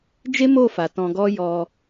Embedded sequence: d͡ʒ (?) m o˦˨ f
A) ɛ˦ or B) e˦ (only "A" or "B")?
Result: B